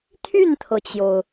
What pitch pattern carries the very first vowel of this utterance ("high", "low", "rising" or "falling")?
falling